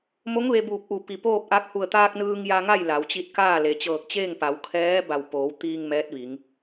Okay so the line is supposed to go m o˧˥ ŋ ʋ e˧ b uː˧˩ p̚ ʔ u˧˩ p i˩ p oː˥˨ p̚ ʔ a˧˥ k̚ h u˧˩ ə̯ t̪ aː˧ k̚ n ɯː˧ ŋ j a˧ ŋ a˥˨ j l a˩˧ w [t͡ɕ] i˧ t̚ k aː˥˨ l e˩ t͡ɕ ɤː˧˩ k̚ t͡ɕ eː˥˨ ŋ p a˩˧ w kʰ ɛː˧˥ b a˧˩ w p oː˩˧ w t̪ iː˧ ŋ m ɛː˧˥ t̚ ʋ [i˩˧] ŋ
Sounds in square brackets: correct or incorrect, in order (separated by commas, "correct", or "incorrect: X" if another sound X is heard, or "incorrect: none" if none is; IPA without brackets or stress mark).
correct, correct